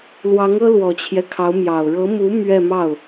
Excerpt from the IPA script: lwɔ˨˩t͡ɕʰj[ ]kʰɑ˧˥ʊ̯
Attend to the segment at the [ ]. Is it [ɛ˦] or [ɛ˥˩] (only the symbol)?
ɛ˦